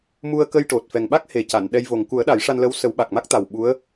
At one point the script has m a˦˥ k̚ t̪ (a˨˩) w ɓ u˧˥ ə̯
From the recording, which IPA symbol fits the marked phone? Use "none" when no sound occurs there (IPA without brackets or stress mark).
a˨˩